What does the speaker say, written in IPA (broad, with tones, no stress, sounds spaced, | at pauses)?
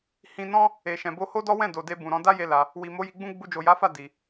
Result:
h ĩ˧ n ɔ̃˦ | e˨ ʃ ɛ̃˨ b o˧ h o˦ d ɔ˦ w ɛ̃˦˨ d o˨ d e˧ b ũ˨ ɾ ɔ̃˨˦ d a˦ j e˧ l a˧ | w i˨ m o˨˦ j i˧ ɡ͡b ũ˦ ɡ͡b u˧ d͡ʒ o˨ j a˨˦ f a˦˨ d i˨